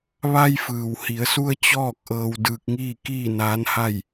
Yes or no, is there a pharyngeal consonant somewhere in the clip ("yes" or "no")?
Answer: no